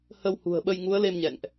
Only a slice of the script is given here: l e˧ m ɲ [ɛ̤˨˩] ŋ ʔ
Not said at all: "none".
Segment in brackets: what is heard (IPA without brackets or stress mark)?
ɛ̰˧˨